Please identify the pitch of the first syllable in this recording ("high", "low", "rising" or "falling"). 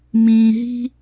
low